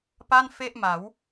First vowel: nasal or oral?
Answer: oral